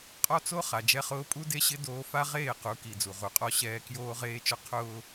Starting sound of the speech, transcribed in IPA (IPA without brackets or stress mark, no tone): qʼ